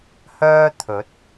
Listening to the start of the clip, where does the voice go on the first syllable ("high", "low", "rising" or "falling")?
high